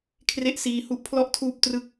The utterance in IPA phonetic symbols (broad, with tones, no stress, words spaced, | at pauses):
kʰre˦˥ʔsiː˧hu˥˩ʔ pʰlɔ˥˩ʔtʰuː˥˩p̚ trɯ˥˩k̚